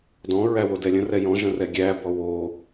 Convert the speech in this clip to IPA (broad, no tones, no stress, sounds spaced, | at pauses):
d ɔ̃ ɹ æ w o d ɛ lʲ ə̃ r ɛ j ɔ̃ ʒ ə̃ r ɛ ɡʲ æ b ɔ w o